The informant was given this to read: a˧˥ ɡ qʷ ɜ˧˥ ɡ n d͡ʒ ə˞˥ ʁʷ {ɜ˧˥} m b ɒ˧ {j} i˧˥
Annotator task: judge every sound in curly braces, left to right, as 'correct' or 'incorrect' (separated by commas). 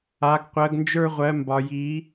correct, correct